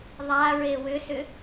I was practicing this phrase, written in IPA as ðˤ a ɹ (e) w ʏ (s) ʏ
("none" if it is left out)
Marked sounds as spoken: e, s

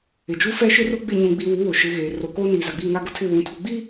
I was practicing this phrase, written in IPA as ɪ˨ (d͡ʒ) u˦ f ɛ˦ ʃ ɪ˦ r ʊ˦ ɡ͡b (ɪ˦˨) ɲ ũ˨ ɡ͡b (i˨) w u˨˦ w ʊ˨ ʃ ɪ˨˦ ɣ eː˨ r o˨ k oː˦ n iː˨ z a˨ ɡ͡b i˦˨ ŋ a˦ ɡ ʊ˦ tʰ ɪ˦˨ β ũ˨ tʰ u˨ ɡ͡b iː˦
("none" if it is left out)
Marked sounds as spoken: d͡ʒ, ɪ˦˨, i˨

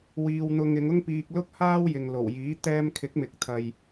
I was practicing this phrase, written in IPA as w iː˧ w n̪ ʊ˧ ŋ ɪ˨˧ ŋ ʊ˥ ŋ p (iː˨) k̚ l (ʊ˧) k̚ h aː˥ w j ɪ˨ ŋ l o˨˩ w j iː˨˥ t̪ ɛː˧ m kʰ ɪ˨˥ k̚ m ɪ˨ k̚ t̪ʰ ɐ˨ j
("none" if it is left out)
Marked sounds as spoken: iː˧, ʊ˥

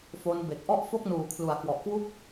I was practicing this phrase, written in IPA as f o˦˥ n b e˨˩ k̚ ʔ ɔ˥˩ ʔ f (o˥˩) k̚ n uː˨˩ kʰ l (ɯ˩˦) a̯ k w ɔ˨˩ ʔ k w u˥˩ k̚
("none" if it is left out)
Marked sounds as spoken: o˥˩, u˩˦

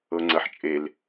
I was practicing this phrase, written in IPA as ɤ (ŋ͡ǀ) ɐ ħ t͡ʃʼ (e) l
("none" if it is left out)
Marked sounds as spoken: ŋ͡ǀ, e

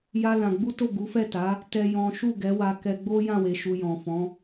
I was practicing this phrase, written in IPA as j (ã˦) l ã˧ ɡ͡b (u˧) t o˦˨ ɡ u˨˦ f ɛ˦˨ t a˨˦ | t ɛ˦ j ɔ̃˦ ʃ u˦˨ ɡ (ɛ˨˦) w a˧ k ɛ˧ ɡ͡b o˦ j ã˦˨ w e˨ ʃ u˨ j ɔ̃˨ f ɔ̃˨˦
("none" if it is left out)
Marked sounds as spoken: a˦, u˦, ɛ˨˦

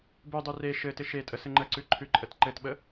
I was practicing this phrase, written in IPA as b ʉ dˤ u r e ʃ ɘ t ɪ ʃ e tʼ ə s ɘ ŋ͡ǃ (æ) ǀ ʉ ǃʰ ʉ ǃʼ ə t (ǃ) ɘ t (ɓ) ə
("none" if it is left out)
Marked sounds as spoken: ə, ǃ, ɓ

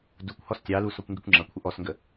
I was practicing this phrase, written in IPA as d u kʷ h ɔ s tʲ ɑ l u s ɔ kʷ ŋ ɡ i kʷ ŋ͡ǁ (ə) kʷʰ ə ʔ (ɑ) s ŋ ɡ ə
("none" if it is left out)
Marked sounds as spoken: ʌ, ɔ

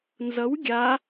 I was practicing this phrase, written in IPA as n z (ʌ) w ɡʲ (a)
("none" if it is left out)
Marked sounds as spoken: ʌ, a

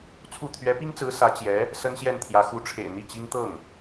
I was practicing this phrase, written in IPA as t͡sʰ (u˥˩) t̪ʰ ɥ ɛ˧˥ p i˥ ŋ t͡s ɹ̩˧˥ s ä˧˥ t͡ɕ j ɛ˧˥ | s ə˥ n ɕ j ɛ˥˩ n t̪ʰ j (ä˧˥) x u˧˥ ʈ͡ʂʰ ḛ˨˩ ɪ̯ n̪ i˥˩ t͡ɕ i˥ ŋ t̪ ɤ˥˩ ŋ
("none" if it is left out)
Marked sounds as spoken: u˥˩, ä˧˥

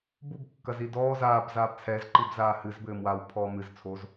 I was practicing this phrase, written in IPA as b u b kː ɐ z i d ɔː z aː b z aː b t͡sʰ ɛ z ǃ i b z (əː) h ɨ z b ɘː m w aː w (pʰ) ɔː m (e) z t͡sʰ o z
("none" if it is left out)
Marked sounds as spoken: aː, pʰ, ɨ

